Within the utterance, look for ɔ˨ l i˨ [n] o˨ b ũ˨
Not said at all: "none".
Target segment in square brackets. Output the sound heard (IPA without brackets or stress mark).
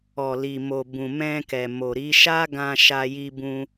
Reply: m